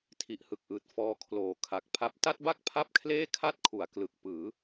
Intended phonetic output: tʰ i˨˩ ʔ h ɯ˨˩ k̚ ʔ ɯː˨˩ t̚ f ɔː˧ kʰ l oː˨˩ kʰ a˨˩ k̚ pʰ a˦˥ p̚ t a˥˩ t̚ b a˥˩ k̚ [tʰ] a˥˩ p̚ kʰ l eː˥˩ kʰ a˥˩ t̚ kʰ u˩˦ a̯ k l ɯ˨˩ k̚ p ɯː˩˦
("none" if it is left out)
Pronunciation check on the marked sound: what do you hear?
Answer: pʰ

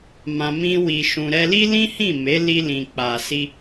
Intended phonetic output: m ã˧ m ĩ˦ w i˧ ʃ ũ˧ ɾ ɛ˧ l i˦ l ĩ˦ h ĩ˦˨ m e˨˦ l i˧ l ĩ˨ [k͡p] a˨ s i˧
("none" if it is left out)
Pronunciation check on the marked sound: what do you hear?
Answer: k͡p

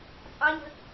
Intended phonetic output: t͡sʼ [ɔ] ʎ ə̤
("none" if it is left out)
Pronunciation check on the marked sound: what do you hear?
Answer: ɑ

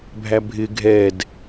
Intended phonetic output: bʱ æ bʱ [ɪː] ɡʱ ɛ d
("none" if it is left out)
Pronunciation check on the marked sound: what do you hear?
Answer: ɪ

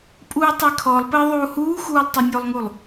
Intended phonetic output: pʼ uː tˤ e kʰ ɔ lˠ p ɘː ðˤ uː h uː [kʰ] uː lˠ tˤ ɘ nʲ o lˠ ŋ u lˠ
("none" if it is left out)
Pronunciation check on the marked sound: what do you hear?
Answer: x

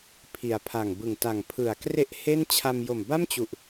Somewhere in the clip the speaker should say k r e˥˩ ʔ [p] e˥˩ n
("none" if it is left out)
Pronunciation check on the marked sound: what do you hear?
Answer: h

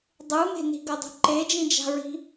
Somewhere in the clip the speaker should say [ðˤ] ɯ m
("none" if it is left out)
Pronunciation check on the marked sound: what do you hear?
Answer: dˤ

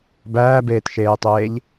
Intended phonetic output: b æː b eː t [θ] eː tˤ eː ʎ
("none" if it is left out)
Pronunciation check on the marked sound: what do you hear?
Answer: ʃ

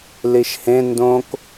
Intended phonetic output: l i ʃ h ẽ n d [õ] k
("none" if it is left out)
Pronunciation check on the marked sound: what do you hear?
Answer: õ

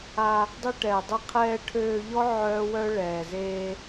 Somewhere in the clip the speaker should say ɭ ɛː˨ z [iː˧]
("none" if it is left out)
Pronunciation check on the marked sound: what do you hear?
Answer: eː˧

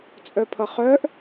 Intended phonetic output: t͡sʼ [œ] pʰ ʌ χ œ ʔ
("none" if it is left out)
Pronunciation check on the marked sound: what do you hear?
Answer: œ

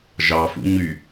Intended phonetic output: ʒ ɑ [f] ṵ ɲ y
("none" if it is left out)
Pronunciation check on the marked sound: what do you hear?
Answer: f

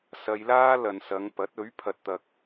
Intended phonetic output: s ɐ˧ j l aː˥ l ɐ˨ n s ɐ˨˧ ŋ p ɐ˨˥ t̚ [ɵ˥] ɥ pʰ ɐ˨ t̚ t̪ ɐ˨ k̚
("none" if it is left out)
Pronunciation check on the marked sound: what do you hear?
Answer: ɵ˨˥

